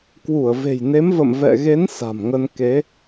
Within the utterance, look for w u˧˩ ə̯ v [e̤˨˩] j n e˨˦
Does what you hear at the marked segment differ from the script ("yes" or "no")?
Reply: no